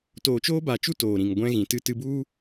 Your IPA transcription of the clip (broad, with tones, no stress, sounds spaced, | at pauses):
t oː˨ t͡ʃ oː˧ b a˨ t͡ʃ u˧ t oː˨ ɾ ĩ˨ ŋ ɡʷ ɛ̃˧ ɣ ĩ˨ t ɨ˧ t ɨ˧ b u˦